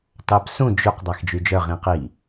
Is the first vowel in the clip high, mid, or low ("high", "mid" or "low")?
low